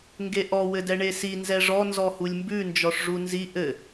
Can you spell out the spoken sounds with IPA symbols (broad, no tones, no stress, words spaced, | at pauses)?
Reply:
ŋɡeʔɔ wɘdɛɳesi nzɛʐɔ nzɔhulʲmbʉ nd͡ʒɔʂʐunzi ʔɘ